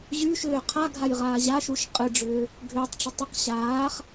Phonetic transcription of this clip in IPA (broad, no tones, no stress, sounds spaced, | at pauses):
ʑ y ʃ ʏː qʰ a ɡʱ a j ʁ aː ʑ a ʃ u ʃ qʼ ɨ ɖ͡ʐ ʏː | ɡʱ ʏː tˤ ʈ͡ʂ ʏ tˤ ʏ q ɕ aː χ